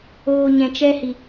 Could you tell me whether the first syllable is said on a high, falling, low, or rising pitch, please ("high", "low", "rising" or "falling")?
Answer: low